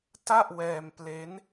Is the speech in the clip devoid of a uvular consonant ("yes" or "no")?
yes